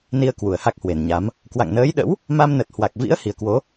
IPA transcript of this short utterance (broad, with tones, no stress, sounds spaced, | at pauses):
n i˧ ə̯ k w u˧˩ ə̯ h a˦˥ k̚ h w e˨˩ n ɲ a˨˦ m | k w a̰˧˨ ŋ n əː˨˦ j ɗ ə̰˧˥ w | m a˧ m n ə˨˩ t̚ h w a˨˩ k̚ v ḭ˧˥ ə̯ h i˨˩ ə̯ k w o˨˦